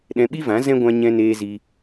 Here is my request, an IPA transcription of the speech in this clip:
ɗɛ̃˧ɓi˦vã˨˦ zɛ̃˦ɡʷã˧ ɲɛ̃˧neː˧ zi˧

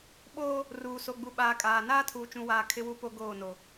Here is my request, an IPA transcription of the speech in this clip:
ɓoː˦ | ruː˨so˨ɡ͡bu˨ ɓaː˨kʼaː˨naː˦ tʰuː˨t͡ʃũ˨waː˨ kʰɪ˦wu˦po˦ ɡoː˦˨no˨

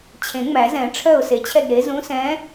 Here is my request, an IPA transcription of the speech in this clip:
t͡ɕʰẽ˨˩˦ŋ͡mæ˨˩˦zɛ̃˨˩˦ ʈ͡ʂʰœ˥˩ʊ̯se˧˩t͡ɕʰɛ˥˩ɡ ɾe˩˥zũ˧˥sɛ̃˧˥

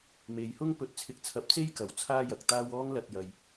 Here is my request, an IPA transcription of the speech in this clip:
me˨jhʊ˥ŋ pɵ˧t̚t͡sʰɪ˧k̚t͡sʰɐ˧p̚ t͡se˥jkɐ˨˩w t͡sʰaː˥jɐ˨k̚t̪aː˥w ɔː˥ŋlɐ˧t̚ jɐ˨j

